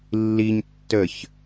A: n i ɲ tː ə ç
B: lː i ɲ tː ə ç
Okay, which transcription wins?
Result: B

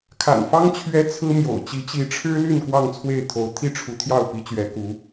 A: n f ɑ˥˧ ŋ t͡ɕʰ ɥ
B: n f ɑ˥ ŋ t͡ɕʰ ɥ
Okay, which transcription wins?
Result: B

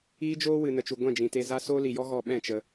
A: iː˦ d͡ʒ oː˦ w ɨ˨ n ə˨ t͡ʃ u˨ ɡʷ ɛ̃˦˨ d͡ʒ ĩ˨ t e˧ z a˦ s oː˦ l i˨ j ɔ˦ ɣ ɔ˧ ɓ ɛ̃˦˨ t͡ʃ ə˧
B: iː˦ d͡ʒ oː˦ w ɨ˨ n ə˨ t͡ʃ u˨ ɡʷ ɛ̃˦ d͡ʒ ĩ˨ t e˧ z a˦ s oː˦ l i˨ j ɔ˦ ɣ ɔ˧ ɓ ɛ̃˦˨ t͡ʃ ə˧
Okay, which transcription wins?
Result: A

